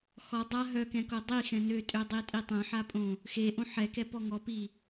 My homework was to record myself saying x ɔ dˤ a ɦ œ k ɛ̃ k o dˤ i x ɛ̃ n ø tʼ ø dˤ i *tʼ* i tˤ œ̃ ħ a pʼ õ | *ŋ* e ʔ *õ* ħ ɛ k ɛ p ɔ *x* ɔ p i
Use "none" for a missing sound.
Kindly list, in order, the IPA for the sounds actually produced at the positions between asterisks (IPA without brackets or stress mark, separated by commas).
tʼ, x, õ, ŋ